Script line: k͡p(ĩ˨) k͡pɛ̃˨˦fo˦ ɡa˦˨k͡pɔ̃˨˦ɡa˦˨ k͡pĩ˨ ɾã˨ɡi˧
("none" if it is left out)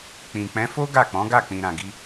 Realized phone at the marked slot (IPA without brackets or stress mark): ĩ˨